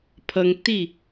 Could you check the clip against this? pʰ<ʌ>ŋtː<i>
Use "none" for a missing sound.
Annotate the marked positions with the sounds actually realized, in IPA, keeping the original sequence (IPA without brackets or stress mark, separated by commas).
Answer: ʌ, i